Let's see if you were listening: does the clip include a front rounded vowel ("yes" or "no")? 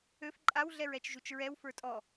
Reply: yes